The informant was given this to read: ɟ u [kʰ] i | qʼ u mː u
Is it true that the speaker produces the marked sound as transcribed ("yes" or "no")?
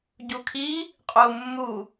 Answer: yes